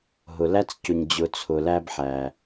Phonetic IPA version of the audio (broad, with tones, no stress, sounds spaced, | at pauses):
ɦ ʊ˩ l æ˥ t͡s c ʊ˩ ɲ d͡ʑ ʊ˩ t͡sʰ ʊ˩ l æ˧ b ħ æ˩